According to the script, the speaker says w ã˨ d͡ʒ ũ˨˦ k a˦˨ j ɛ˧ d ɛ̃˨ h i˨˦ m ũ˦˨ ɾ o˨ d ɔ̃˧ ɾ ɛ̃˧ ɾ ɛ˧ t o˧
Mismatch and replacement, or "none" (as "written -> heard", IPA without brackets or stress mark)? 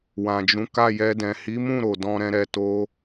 none